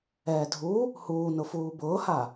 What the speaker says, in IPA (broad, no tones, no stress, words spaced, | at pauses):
ɛːdʱu | huːnʊfuː bʊːha